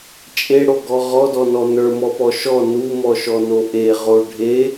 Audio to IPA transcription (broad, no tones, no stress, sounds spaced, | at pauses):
t͡ʃʼ e ɽ o ɡ ɔ ʁ ɔ d ɔ n ɔ n ə˞ m ɔ p ɔ ʃ ɔ n u m ɔ ʃ ɔ n o ʔ e ʁ o ɖʱ e